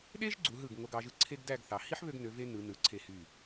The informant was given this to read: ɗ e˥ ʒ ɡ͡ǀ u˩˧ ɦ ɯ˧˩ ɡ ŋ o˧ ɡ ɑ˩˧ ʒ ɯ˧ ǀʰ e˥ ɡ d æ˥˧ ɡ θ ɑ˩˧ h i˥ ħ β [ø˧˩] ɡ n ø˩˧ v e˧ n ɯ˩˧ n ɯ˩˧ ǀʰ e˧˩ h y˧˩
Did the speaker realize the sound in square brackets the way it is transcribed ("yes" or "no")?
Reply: no